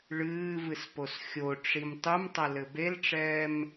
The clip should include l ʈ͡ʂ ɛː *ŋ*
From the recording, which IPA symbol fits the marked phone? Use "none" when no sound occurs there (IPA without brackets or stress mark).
m